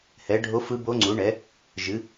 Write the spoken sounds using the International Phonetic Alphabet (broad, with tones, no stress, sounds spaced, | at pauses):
h ɛ˩˥ ɖʱ o˧˥ f ɯ˧˥ b o˧˥ ŋ͡ǀ u˩˥ ɳ ɛ˩˥ | ʒ ɨ˩˥